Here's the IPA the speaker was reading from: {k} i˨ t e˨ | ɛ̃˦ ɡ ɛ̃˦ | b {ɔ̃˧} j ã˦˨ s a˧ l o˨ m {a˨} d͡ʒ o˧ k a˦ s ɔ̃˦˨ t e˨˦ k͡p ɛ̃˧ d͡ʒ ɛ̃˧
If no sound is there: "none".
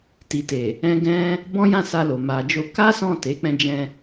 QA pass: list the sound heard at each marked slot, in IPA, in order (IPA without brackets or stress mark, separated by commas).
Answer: t, ɔ̃˦, a˨